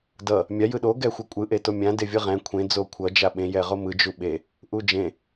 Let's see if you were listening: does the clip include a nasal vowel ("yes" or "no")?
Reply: yes